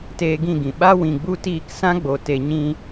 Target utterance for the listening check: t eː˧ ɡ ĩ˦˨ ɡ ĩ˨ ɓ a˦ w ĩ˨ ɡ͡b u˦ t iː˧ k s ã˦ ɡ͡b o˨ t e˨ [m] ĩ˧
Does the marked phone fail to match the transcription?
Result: yes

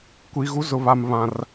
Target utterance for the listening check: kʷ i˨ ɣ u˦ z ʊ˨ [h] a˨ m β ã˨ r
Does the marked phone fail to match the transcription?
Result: yes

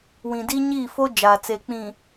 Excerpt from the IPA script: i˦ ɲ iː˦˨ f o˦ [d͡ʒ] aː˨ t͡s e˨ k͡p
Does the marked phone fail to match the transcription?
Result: no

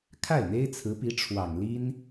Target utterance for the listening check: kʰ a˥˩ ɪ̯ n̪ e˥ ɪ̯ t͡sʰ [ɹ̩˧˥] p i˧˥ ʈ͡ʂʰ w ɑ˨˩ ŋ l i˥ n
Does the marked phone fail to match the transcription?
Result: no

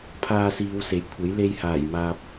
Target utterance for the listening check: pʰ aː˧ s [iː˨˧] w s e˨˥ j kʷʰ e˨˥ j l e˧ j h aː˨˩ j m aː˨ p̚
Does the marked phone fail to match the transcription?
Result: no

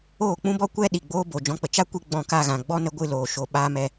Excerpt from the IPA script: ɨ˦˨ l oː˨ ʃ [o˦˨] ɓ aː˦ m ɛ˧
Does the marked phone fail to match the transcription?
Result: yes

